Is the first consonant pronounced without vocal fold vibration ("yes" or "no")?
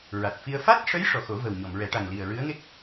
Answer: no